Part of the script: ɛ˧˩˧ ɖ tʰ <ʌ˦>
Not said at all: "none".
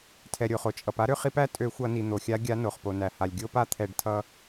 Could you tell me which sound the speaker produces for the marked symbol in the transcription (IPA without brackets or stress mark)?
ʌ˦